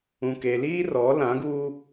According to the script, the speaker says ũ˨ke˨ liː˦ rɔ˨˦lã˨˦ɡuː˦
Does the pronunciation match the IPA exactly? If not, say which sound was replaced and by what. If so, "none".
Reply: none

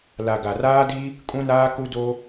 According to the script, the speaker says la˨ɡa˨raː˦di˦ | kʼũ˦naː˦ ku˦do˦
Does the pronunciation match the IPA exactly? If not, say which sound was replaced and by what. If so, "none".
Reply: none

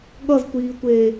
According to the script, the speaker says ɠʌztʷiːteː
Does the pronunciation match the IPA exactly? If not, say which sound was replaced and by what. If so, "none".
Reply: t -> tʷ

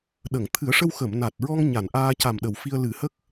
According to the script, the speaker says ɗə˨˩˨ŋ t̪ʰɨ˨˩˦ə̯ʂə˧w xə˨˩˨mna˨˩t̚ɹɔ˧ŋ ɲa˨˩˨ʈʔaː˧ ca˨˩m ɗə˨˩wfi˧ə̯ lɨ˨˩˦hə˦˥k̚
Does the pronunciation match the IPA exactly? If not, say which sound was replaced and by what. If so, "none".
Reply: ʈ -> n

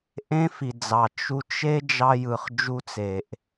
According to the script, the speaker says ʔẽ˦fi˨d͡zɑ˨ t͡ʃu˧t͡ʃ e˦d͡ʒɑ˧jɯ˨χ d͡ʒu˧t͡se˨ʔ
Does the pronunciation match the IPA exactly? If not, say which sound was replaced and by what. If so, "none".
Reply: none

